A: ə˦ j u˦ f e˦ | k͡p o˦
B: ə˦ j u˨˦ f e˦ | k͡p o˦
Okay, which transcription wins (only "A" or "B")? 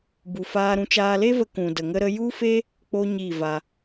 A